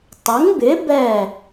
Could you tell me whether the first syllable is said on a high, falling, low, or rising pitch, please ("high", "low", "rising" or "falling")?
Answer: rising